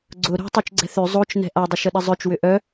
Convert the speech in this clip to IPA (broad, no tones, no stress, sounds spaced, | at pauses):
ɡ͡ǀ ʊ ɾ o̤ tˤ ɛ t͡ʃ ɡ͡ǀ ɛ̤ θ ø zˤ o t͡ʃ n ɛ̤ ʔ a dˤ ə ʃ ə ɗ ə zˤ œ t͡ʃ w ʏ ʔ œ